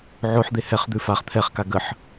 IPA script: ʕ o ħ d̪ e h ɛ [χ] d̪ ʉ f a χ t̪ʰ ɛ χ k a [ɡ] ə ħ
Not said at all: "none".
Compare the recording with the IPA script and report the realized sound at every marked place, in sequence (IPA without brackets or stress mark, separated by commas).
χ, ɡ